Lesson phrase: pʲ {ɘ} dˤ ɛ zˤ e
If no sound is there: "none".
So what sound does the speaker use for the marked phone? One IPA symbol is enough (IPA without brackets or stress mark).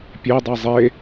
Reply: e